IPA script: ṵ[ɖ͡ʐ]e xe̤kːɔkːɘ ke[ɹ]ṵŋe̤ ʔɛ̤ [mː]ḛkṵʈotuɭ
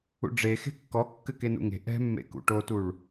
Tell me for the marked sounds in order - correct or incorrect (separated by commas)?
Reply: correct, incorrect, correct